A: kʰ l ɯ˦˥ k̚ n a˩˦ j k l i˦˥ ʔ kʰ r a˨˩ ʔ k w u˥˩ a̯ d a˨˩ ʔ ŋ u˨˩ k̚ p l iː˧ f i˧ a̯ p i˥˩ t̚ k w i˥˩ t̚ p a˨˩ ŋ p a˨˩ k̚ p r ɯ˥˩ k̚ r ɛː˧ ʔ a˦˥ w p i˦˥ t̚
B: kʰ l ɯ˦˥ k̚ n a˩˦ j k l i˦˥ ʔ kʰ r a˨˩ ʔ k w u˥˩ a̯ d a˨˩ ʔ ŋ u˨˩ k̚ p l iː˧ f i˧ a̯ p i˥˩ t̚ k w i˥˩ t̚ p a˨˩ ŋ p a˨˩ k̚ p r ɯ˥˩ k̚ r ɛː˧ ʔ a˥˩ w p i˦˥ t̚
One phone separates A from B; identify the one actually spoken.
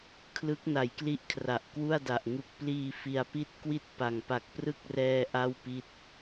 B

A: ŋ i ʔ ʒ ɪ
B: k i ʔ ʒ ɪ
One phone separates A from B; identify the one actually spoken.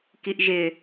B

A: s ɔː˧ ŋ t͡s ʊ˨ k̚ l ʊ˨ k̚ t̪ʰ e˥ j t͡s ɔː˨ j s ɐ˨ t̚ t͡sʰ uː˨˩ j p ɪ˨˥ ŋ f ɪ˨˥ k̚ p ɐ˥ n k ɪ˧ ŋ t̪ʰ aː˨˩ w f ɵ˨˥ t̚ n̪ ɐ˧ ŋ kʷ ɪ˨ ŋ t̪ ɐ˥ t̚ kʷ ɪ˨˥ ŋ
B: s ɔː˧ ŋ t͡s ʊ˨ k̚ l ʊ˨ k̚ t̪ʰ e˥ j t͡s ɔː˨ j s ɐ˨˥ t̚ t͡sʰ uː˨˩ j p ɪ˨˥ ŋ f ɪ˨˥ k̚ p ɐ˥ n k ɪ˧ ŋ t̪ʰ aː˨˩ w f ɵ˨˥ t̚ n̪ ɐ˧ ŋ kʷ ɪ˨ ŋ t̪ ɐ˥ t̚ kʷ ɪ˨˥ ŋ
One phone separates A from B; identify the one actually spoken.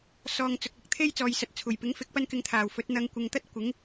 A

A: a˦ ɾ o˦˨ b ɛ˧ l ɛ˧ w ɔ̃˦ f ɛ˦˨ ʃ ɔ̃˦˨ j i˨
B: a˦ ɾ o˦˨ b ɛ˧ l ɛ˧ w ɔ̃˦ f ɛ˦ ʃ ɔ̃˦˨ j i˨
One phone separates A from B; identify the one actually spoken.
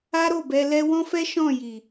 B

